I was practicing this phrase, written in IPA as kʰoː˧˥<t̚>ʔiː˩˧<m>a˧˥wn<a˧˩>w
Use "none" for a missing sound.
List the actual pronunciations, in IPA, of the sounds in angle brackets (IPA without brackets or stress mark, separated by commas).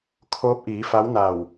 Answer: p̚, f, a˧˩